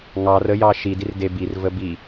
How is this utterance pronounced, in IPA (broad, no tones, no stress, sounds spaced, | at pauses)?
ŋ ɑ r ə j ɑ ʃ i d i r d e b i r v ə b i